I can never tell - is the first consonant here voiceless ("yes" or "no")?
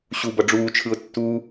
yes